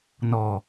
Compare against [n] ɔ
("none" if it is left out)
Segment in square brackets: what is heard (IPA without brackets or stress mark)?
n